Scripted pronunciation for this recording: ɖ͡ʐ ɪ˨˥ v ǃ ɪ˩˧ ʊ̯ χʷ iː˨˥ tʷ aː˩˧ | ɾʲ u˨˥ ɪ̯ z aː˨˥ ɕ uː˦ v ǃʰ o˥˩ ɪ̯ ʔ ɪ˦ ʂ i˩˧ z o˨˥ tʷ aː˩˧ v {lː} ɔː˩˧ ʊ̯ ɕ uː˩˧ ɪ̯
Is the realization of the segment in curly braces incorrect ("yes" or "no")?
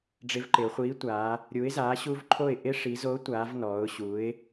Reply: yes